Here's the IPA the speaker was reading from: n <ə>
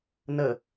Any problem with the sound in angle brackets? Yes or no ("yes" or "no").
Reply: no